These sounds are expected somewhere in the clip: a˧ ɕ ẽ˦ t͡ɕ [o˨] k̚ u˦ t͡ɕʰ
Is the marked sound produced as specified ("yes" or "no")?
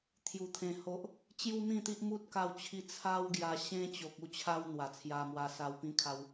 yes